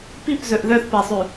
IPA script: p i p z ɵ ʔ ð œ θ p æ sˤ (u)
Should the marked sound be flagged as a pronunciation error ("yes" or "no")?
yes